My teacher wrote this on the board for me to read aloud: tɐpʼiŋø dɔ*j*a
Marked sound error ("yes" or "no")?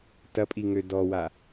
yes